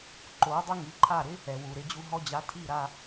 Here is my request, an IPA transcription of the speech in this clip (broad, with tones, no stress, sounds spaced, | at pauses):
ǃ o˩˥ dˤ ʊ˥ ŋ i˩˥ ǃʰ a˥˩ ɾ ɪ˥ | ɛ˩ w u˩ ɾ ɪ˧ d͡ʑ u˧ ɦ ɔ˧ d͡ʑ a˩˥ tʰ i˥˩ ɾ a˧